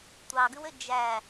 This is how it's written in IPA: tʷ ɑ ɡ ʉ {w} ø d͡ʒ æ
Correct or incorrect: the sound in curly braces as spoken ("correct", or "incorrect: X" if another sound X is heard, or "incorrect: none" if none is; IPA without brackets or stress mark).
correct